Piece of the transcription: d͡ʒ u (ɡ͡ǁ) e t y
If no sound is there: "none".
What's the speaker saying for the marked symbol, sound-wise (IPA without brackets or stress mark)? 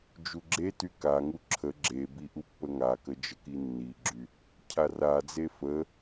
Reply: ɡ͡ǁ